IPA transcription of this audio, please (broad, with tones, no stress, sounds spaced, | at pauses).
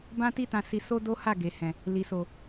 b ã˦ t i˦ t ã˧ s i˧ s o˦ d o˦ h a˦˨ ɡ e˨ h ɛ̃˨ | l i˨ s o˨